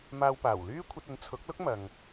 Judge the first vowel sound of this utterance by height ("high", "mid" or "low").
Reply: low